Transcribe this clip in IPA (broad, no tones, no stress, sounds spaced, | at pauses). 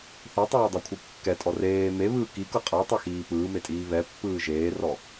θ e tˤ eː dˤ a kʷʰ ɯ kː ɛ tʼ ɔ r eː m e β ɯː k i k ɤ qʼ a tˤ o x iː p ɯː m e tʼ iː β ɛ pː ɯː ʒ eː r ɔ